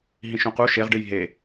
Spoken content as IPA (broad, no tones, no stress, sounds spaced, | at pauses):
ɦ ĩ ʃ ũ q u ʃ e ʁ ɖ ɨ j ɦ e